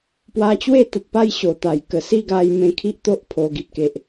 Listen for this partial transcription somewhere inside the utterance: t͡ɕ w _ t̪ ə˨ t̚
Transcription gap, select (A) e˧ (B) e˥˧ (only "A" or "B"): B